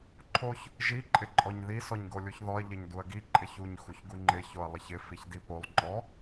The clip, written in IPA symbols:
ǃʰ o ç | ʒ i ǃʼ ɪ ǃʼ ɔ ɲ ð i s ɔ ɲ ɡ o lʲ u ç ð ɔ ɐ̯ ʎ ɪ ɲ d u ɐ̯ ɡ i ǃʼ ɪ ç u ɲ x u ç ɡ u ŋ͡ǃ ɪ ç o ɐ̯ lˠ ɪ ç ɪ f i ç d i p o lˠ ŋ͡ǃ ɔ

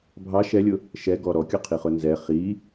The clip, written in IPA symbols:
bʱ ɑ ʃ ɛ lʲ ʊ | ʃ ɛ ɡ ɔ ɾ ɔ kʲ ɔ qʰ i χ ʊ n z ɛ χ i

